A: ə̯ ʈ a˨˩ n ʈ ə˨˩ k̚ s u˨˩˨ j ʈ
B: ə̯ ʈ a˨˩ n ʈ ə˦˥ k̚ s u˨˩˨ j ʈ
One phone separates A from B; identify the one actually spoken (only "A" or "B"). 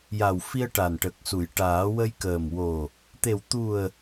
A